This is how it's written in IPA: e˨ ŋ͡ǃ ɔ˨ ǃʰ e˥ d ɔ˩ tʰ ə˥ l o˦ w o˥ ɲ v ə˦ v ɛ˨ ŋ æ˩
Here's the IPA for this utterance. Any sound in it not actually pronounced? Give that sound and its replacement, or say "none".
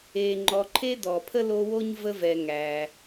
tʰ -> pʰ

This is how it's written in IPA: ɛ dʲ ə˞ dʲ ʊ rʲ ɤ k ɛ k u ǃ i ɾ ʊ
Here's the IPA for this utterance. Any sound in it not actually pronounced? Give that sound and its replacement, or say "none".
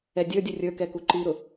ɤ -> ə˞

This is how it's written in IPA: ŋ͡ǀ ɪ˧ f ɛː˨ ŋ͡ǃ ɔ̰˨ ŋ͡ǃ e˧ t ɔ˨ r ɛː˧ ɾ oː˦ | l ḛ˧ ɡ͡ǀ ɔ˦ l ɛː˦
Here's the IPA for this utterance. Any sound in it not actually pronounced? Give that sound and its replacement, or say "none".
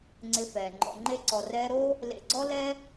t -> ǀ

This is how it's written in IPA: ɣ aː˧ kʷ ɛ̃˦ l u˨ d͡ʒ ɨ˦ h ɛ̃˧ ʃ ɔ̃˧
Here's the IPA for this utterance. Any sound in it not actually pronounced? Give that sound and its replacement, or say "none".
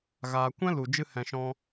none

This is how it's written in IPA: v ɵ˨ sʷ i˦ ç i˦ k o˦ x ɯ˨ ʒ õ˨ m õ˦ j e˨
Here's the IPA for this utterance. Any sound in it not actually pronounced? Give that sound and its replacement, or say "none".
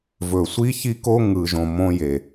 x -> ŋ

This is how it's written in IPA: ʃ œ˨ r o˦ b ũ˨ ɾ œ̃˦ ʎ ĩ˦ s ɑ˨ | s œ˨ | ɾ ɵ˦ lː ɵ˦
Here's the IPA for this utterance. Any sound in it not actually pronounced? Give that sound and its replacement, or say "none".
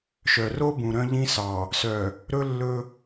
none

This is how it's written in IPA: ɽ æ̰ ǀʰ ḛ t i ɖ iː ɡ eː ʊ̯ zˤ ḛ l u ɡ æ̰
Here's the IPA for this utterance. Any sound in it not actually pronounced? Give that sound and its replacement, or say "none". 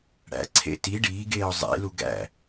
none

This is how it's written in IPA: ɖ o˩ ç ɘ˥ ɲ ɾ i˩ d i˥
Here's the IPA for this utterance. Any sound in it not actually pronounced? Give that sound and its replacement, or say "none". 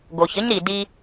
ɖ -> ɡ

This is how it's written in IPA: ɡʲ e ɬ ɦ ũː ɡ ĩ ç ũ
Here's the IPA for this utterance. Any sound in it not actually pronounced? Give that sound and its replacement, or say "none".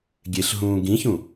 none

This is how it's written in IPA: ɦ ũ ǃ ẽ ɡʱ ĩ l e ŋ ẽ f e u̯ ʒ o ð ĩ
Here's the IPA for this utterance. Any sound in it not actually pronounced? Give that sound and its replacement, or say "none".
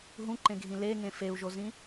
ð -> z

